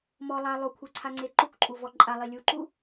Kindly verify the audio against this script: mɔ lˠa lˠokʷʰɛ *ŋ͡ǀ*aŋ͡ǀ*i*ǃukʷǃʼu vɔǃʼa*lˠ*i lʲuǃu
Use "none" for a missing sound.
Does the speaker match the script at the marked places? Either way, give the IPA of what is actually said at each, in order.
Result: ǀʰ, e, lˠ

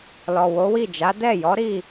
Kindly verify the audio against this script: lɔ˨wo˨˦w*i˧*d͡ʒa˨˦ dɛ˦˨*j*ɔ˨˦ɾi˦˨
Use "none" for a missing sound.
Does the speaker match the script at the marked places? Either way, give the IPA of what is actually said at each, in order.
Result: i˦˨, j

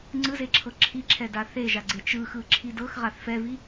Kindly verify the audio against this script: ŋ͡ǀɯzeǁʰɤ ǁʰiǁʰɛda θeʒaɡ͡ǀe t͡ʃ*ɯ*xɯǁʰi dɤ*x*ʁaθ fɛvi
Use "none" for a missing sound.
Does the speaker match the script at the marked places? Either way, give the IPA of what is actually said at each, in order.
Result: ɯ, x

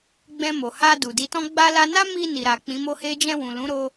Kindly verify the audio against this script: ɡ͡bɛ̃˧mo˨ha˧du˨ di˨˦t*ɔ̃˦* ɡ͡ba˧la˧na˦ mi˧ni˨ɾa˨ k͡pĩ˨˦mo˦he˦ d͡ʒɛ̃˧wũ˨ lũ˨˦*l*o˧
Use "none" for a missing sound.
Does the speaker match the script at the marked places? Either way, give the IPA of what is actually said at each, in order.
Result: ɔ̃˦, ɾ

